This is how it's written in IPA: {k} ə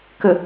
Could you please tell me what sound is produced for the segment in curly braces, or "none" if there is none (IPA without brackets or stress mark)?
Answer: k